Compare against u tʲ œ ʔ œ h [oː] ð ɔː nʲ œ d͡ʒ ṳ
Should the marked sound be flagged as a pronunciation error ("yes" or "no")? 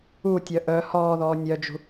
yes